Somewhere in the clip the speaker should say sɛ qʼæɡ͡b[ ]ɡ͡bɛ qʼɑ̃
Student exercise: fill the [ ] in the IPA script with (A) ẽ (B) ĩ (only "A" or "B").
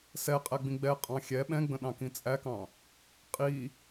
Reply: B